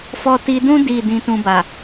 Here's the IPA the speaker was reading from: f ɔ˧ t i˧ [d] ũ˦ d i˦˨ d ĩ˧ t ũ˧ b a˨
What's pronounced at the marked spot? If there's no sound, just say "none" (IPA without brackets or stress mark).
d